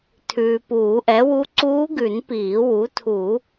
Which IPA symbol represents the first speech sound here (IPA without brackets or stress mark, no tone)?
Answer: tʰ